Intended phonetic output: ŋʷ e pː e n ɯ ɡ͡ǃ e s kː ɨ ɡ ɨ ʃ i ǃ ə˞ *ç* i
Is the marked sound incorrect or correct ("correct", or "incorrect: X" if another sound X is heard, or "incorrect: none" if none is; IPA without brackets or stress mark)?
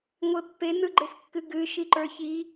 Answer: correct